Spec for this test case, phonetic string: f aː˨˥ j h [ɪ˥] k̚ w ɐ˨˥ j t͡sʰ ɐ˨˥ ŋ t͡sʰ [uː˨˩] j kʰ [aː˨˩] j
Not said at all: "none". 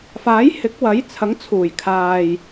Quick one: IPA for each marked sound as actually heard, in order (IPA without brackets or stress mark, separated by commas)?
ɪ˨˥, uː˨˩, aː˨